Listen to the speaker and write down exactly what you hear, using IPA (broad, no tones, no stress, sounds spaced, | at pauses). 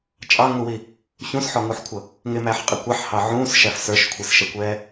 t͡ʃʼ ɑ ŋ u w i | ç ũ s ħ ɔ ŋ u ħ kʷʰ ʌ | ŋ ɪ m æ ħ qʼ ɪ kʷ ɑ ħ h ɑ ʕ ũː s ʃ æ f s ə˞ ʃ kʷʰ i s ʃ ɛ kʷ ɛː